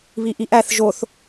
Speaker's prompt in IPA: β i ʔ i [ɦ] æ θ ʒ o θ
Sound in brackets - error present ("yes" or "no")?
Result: yes